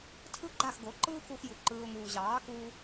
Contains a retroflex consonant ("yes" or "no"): no